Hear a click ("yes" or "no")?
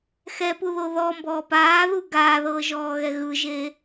no